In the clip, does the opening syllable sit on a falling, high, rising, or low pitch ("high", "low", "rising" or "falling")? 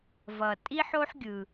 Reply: low